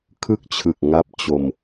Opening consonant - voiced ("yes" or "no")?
no